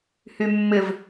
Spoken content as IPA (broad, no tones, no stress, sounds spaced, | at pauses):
h y mː ɪ v